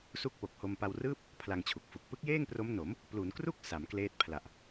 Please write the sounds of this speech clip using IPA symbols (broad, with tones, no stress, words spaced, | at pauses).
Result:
su˥˩k̚po˨˩k̚ho˧m pa˧wrɯː˥˩p̚ | pʰla˧ŋt͡ɕʰu˨˩k̚fu˨˩k̚ pɯ˦˥k̚jeː˥˩ŋpro˦˥m no˩˦m | plu˩˦nkru˥˩k̚ sa˩˦mkleː˦˥t̚ pʰla˨˩ʔ